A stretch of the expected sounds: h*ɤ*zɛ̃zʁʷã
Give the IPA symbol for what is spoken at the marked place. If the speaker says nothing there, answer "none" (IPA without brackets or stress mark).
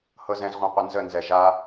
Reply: ɤ